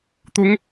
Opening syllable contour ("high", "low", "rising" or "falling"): rising